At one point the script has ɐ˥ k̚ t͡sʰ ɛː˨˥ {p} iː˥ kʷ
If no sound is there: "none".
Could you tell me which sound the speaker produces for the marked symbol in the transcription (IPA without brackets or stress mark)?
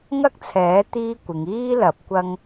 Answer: t̪